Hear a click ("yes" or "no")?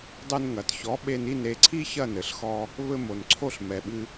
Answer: yes